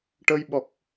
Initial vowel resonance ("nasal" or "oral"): oral